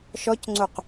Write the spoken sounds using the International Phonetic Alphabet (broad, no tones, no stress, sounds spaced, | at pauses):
ʃ ɔ c ŋ͡ǀ o q